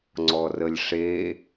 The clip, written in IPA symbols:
ŋ͡ǀ ɔ r ə lʲ ʂ e

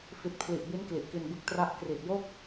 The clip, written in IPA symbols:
f i˨˩ t̚ pʰ l i˨˩ ʔ b i˦˥ n k l i˨˩ ʔ k i˧ n b ɯ˦˥ k̚ t r a˦˥ ʔ k r i˨˩ t̚ j o˥˩ k̚

